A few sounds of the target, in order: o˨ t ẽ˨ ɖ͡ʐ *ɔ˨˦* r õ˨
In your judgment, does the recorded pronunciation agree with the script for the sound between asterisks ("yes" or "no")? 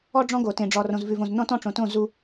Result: no